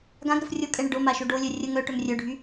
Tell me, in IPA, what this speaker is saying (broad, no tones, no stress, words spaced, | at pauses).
ɡãɡ ɾəfrʲokʼɛ ɳəɖoma ʃoɖolʲœ rʲə ŋœʈœm rʲœɖʱy